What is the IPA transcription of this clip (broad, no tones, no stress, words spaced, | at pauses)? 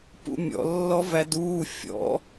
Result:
pṵmʲɔ̰ lːɔvæduː fʲɔ̰